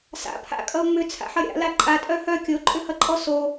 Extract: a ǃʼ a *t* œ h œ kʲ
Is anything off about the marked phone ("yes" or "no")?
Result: yes